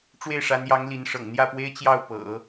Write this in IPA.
ʈ͡ʂwe˥˩ɪ̯ʂa˧˥njɑ˧˥ŋ li˧˥nʂɤ̰˨˩ŋ n̪jä˥˩pwe˥ɪ̯t͡ɕjɑ˥˩ʊ̯ pɤ̰˨˩˦

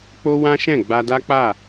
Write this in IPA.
k͡po˦ wã˦ʃɛ̃˦˨ ɡ͡ba˧ da˦k͡pa˦˨

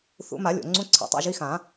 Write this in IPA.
θṵ˨˩˦ma˨˩˦lʲo̰˩ ŋ͡ǀũ˧˥˧ǀʰḛ˨˩˦tˤa̰˧˥˧ʒi˧˥˧ xã˨˩˦

